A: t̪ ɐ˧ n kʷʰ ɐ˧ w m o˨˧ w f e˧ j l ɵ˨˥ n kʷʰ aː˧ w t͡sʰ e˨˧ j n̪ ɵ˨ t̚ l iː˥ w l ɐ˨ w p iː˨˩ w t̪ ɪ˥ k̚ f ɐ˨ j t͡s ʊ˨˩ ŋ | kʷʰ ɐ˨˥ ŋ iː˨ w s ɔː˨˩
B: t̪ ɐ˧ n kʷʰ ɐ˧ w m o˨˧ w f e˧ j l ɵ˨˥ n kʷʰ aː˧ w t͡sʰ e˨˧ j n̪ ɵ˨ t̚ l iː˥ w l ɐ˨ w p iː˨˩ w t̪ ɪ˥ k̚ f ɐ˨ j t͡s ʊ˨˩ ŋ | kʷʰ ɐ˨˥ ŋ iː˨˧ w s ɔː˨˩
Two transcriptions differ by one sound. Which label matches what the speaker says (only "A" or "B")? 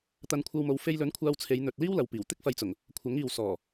A